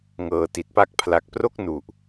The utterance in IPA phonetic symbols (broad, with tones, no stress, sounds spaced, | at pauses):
ŋ ɤː˨˩ t i˨˩ t̚ p a˥˩ k̚ pʰ l a˨˩ k̚ p r o˥˩ k̚ n u˨˩ ʔ